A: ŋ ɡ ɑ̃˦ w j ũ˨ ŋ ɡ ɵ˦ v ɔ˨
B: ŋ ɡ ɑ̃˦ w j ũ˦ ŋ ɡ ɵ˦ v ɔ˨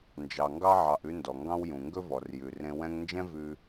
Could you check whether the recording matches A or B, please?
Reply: A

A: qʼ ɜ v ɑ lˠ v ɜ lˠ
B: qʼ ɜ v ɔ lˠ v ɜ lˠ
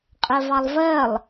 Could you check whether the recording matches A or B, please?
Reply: A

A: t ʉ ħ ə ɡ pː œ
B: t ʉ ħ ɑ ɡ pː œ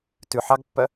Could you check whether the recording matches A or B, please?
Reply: B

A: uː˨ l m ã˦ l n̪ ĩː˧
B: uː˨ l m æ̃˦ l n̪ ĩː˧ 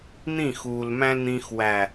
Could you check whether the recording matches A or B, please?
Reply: B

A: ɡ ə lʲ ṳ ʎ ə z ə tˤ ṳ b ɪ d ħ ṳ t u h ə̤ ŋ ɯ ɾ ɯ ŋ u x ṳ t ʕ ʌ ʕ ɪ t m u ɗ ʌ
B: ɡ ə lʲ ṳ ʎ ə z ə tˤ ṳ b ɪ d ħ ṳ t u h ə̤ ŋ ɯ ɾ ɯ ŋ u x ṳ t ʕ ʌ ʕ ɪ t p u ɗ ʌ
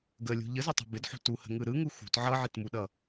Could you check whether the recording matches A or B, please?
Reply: A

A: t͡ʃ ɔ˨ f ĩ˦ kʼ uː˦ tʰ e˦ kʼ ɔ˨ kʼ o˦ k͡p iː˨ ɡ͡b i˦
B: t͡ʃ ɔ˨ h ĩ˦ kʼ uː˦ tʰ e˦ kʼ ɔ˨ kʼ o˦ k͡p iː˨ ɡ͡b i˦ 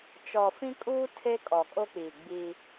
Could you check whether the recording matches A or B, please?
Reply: A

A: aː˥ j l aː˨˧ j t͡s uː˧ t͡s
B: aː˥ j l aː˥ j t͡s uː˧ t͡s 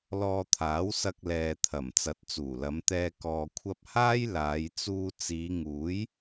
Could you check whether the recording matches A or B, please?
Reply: A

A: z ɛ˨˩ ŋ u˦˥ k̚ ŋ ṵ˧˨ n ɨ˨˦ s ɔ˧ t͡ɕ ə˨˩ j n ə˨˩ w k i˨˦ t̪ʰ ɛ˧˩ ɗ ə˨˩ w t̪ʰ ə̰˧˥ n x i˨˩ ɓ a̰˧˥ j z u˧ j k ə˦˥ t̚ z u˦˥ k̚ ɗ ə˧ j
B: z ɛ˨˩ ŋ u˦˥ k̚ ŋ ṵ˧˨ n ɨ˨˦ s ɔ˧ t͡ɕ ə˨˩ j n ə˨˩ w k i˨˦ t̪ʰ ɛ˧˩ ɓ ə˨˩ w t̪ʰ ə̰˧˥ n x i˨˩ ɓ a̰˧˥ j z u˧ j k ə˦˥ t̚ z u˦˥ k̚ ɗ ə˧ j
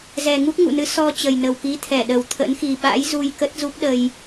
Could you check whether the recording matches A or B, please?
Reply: A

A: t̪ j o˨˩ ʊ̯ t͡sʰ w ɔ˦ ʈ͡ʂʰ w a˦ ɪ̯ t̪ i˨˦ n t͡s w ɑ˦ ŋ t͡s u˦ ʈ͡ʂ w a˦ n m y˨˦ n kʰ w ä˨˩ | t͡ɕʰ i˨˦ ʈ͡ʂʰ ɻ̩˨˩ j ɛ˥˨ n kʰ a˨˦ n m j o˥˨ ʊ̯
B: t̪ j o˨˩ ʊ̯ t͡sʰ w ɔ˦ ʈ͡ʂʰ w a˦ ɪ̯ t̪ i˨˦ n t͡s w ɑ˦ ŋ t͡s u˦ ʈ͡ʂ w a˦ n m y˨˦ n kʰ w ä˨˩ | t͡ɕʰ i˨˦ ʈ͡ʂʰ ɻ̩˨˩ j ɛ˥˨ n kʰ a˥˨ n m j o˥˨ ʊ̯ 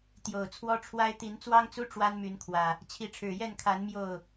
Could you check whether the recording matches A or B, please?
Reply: A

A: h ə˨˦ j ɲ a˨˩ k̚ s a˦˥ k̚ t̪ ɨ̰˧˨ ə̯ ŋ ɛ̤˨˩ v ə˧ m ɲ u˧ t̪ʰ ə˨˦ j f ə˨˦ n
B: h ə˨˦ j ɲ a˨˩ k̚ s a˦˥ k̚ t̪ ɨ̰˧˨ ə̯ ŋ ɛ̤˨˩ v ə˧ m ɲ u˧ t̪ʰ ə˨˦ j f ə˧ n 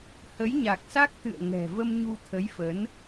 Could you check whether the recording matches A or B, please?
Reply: A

